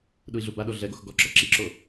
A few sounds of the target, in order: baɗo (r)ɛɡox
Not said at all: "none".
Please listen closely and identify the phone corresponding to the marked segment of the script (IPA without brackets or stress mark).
ɮ